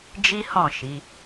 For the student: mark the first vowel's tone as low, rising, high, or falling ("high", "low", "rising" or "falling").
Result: high